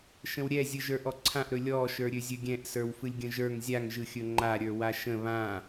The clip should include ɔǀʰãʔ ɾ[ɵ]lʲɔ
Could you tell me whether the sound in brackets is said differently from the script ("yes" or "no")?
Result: no